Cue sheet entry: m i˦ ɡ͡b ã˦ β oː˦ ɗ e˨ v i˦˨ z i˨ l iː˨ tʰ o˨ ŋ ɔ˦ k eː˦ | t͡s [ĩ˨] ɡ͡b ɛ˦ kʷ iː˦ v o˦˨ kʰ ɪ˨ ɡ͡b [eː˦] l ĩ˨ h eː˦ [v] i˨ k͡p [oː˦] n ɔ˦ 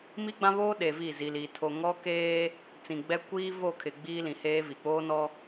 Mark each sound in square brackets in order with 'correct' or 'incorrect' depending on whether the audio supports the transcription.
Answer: correct, incorrect: iː˦, correct, correct

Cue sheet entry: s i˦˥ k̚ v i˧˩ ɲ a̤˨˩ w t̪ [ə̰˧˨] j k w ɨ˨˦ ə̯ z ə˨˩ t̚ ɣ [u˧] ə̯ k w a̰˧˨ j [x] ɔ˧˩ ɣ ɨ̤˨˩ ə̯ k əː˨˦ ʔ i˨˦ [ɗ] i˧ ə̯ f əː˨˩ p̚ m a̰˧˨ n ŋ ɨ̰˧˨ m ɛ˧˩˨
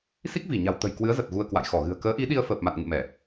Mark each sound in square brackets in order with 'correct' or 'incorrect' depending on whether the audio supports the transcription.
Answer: incorrect: ə̤˨˩, correct, correct, correct

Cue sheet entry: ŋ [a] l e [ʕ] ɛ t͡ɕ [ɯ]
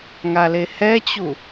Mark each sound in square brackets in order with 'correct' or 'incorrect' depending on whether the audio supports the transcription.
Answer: correct, incorrect: h, incorrect: u

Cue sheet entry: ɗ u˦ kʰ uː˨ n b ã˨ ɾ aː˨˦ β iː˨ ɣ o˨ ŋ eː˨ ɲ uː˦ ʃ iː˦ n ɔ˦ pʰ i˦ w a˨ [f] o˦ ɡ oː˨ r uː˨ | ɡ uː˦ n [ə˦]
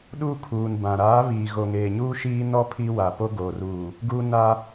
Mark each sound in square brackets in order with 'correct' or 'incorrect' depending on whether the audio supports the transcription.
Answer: incorrect: p, incorrect: a˦

